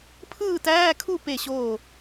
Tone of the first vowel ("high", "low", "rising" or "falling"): falling